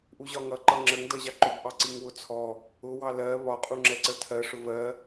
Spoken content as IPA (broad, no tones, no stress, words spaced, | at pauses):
ʔuʑɒŋʌ ǃʌŋ͡ǁəŋ dʌʑɑǃʊb ʔɑǀiŋwʊt͡sʰɔ | ʊ wɑlɜ βɒ qʼuŋ͡ǁɛǀətʰɜ ʂʊvɜ